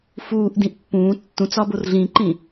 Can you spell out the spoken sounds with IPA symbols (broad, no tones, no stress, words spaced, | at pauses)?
fuːʔdĩʔ pːũː tːũt͡sɒ borɮĩǃĩ